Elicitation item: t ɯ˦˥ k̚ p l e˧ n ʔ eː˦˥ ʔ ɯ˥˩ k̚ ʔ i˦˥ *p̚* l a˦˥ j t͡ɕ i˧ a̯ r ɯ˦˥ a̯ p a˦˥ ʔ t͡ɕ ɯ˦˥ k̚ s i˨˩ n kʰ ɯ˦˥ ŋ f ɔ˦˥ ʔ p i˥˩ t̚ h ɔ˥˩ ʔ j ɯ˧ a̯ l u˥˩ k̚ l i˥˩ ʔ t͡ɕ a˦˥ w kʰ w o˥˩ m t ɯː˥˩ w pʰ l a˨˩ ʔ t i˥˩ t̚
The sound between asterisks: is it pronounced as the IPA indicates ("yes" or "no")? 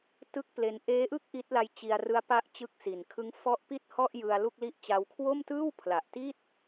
no